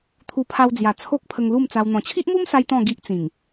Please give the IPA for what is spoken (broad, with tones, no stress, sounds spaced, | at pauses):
t̪ʰ u˧ pʰ a˧ w d͡z j a˨˩ t͡sʰ o˦ k̚ pʰ ə˧ ŋ l u˥˧ m t͡s a˧ w n̪ ɔ̃˨˩ t͡ɕʰ i˦ ʔ m u˦ m s a˧ j t̪ ɔ̃˥˧ ɡ i˦ ʔ t͡s ĩ˨˩ ŋ